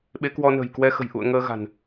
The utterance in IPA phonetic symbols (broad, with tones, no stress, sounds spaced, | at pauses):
ɓ e˨˦ k w ɔ˧ n ə̤˨˩ j k w ɛ˧ x ə̤˨˩ j ʔ ṵ˧˨ ə̯ ŋ əː˧ ɣ a̤˨˩ n